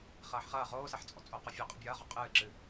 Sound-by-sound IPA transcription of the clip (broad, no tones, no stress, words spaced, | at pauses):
χɐːħχɐː ʁoːsɛħt͡sʼɔ̰ t͡sʼoqɔfʲo qʼɨbʲɐːʁɔ qʼɨːǁɨ